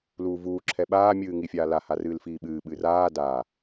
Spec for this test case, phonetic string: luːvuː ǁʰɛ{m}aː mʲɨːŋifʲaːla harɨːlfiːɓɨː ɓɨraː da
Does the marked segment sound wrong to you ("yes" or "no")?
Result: yes